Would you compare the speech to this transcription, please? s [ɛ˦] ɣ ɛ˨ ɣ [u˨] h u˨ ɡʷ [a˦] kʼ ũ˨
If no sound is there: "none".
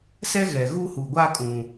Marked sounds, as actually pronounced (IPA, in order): ɛ˦, u˦, a˦

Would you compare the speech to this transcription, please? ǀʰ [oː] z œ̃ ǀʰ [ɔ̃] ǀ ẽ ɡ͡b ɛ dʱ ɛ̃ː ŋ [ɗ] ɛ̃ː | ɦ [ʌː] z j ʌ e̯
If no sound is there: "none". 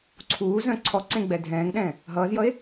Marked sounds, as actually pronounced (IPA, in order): uː, ɔ, ɗ, ʌː

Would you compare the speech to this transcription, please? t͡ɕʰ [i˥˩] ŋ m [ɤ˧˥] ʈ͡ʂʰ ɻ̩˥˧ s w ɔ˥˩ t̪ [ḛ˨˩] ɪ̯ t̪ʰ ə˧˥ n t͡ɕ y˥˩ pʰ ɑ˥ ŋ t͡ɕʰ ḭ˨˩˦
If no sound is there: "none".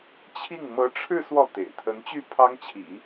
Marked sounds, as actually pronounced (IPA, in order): i˥˩, ɤ˧˥, ḛ˨˩

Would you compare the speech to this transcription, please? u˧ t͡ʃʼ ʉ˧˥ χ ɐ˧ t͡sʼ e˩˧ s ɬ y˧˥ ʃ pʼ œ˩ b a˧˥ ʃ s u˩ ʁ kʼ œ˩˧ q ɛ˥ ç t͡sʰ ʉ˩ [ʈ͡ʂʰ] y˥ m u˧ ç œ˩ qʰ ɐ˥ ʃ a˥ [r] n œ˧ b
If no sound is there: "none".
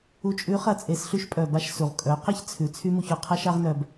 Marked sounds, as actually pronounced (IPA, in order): t͡sʰ, ʁ

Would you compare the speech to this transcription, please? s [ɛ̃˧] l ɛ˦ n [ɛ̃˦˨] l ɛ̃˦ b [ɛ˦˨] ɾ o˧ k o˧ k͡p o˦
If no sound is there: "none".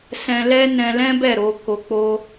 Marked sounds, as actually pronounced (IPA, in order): ɛ̃˧, ɛ̃˧, ɛ˦˨

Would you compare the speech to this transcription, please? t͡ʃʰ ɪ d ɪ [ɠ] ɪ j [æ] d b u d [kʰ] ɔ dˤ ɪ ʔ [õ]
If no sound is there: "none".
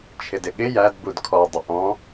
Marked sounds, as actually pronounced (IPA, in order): ɠ, æ, kʰ, ɔ̃

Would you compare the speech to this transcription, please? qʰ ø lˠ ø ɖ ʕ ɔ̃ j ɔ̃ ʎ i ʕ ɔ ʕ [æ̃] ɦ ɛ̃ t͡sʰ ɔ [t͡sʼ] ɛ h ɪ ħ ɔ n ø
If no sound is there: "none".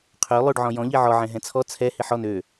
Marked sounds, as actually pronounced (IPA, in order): ɛ̃, t͡sʰ

